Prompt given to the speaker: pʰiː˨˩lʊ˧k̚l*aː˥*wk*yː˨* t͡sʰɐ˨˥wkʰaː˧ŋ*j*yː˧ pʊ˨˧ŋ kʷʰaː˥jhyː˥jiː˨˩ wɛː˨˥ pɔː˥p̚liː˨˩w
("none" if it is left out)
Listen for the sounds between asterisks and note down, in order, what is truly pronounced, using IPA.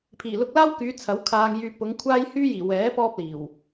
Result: aː˥, yː˨˧, j

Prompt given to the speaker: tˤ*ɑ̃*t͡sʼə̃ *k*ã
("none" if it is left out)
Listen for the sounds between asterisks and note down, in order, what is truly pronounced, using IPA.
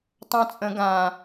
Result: ɑ̃, ɡ

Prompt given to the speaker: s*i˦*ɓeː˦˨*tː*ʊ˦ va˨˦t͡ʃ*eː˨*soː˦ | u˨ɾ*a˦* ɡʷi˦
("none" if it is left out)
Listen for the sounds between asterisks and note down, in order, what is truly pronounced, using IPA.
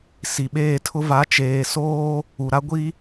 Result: i˨, tʰ, eː˨, a˦

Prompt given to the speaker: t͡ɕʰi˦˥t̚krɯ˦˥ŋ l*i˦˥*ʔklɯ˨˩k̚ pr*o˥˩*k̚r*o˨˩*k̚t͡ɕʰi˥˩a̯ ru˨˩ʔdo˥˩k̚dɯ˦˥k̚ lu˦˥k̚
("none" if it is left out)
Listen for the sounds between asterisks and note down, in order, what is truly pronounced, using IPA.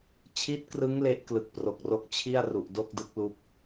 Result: e˦˥, o˨˩, o˦˥

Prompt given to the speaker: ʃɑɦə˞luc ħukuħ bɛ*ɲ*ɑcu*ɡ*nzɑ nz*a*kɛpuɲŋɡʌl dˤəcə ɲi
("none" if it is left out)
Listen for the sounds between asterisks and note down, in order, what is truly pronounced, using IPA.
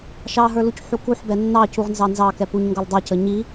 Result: nː, ʁ, ɑ

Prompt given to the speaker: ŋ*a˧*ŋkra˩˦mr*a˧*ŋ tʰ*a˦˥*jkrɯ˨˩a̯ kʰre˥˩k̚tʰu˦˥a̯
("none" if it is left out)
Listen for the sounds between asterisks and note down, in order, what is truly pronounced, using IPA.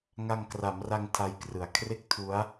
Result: a˧, a˧, a˦˥

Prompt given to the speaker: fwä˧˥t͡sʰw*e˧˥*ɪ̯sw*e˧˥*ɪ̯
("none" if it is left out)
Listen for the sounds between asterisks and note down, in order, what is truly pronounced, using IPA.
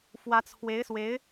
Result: e˧˥, e˧˥

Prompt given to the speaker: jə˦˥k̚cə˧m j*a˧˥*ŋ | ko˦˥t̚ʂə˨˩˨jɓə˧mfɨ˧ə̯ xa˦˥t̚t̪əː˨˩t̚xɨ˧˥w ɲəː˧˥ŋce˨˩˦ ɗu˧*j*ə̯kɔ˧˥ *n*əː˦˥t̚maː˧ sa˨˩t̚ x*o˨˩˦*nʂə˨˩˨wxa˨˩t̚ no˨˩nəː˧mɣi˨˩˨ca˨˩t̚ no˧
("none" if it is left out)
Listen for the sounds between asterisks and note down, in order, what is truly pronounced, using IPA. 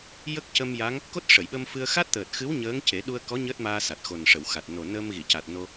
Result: a˧˥, none, ɲ, o˨˩

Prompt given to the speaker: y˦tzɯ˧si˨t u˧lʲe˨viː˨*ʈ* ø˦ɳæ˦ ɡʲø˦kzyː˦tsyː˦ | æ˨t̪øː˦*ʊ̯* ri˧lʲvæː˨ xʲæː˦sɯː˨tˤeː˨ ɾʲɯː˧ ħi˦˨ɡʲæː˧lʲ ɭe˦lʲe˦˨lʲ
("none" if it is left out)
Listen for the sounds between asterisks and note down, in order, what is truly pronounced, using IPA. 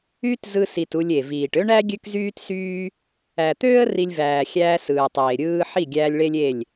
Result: ʈ, ə̯

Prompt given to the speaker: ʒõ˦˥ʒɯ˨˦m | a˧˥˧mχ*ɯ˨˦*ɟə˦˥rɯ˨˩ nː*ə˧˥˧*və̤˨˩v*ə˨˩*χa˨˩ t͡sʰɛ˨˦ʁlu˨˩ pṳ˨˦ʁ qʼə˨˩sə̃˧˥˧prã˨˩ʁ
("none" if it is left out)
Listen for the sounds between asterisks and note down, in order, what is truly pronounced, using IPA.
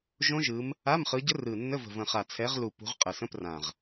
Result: ɯ˨˦, ə˧˥˧, ə̃˨˩

